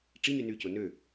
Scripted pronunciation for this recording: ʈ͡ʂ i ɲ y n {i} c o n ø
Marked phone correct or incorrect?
incorrect